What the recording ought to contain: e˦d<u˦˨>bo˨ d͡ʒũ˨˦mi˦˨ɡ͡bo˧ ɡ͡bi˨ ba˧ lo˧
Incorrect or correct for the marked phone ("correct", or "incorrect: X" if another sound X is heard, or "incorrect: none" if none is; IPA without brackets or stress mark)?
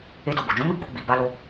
incorrect: o˦˨